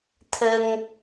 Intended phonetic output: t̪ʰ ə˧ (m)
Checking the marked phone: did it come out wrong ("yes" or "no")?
yes